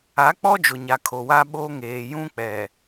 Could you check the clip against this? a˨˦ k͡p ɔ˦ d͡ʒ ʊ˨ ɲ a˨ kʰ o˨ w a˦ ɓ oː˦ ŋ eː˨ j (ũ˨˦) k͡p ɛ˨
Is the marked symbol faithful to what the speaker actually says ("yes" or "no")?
no